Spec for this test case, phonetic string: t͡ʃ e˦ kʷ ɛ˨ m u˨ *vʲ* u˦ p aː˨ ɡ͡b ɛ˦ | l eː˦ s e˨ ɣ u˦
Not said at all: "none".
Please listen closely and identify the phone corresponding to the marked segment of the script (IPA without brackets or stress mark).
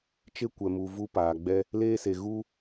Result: v